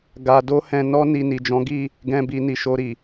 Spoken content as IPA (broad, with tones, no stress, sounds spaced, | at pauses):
ɡ a˧ d o˦ h ɛ̃˧ n ɔ˦ n i˧ n i˨ d͡ʒ ɔ̃˨˦ ɡ i˦˨ | ɡ ɛ̃˧ b i˧ n i˨ ʃ o˧ ɾ i˨